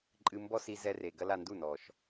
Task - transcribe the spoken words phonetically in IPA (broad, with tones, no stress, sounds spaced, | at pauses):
ǃʼ ɨ˧ m b ɔ˦ s i˧ z ɛ˧ r e˨ ɡ ɐ˧ l a˨ n d u˦˨ n ɔ˨ ʃ